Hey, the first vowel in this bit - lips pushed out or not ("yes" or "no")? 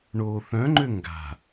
yes